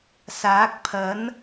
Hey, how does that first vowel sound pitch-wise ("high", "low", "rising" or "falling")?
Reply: rising